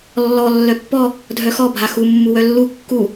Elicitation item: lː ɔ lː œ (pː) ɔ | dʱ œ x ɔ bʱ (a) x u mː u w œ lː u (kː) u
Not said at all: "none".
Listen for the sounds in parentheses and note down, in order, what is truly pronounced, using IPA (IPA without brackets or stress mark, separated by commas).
pː, a, kː